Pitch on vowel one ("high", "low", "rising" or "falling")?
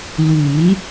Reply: rising